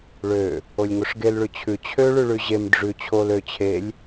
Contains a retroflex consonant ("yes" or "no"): yes